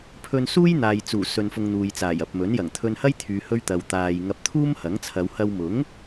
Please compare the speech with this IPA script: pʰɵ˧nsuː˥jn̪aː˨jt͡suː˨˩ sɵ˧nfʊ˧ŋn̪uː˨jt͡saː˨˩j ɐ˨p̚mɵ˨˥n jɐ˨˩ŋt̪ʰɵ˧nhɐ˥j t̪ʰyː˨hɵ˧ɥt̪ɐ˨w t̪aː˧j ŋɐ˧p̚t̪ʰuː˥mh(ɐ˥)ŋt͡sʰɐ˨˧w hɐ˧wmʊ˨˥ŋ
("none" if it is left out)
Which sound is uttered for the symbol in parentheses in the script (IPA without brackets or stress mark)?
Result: ɐ˨˥